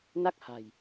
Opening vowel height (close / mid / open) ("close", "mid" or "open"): open